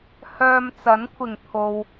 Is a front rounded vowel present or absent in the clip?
present